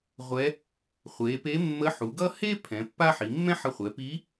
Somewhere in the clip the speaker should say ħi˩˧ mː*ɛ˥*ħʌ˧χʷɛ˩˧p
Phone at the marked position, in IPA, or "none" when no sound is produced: ɛ̃˥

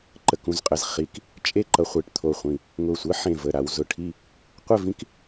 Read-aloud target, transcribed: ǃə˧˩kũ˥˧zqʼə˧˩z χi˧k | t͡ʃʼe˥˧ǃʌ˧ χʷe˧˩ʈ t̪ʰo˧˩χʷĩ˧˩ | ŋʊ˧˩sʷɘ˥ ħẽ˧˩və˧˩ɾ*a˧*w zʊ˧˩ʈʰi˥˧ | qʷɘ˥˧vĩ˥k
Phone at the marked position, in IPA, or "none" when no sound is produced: a˧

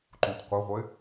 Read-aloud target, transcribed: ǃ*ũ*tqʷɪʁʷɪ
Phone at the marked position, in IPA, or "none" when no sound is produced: ũ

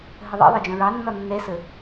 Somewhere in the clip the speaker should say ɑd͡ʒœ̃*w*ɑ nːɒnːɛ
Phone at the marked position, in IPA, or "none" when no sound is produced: ɹ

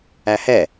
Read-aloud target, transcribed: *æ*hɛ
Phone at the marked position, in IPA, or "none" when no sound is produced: æ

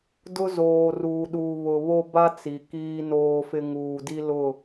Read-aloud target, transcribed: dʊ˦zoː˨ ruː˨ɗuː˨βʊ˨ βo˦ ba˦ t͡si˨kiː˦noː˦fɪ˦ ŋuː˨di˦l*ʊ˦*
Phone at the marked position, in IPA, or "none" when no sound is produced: ʊ˦˨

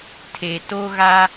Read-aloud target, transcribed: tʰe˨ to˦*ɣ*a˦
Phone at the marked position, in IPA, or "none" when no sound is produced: ɣ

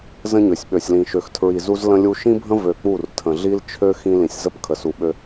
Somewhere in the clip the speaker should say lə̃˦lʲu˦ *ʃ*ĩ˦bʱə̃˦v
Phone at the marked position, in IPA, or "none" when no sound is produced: ʃ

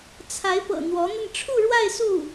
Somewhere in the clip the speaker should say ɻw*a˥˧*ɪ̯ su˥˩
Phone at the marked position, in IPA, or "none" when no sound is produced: a˥˧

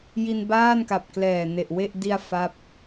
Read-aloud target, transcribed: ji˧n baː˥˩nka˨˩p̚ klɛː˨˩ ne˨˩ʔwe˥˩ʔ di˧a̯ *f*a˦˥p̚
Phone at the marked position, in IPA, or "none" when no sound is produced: f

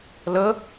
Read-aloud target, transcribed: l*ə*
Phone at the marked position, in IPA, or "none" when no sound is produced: ə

